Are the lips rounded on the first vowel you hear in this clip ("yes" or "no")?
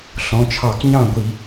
yes